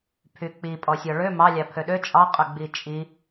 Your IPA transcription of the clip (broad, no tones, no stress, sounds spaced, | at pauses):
pʰ y k͡p i pʼ ɔ sʲ ɔ ɭ ø m ɑ lʲ ɑ pʰ ø ɗ ø t͡ʃʼ ɑ qʼ ø ɡ͡b i t͡ʃʼ i